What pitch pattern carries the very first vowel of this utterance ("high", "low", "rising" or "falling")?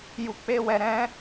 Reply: low